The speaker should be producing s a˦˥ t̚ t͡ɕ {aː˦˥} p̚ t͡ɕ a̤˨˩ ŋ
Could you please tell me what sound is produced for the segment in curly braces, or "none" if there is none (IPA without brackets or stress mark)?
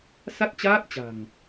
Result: aː˦˥